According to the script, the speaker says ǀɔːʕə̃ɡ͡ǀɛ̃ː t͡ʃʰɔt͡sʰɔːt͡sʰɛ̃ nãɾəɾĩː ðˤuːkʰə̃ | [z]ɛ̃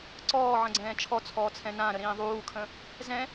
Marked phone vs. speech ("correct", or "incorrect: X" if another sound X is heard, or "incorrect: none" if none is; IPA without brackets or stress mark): correct